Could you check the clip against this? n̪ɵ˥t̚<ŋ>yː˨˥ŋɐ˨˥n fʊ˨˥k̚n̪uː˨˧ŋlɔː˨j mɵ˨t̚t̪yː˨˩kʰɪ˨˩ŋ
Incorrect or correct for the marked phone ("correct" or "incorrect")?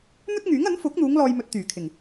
correct